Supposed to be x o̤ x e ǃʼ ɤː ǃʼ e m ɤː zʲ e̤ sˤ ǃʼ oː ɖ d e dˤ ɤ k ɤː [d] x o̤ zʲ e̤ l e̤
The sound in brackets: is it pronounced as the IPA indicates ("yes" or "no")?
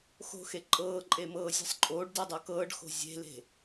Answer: no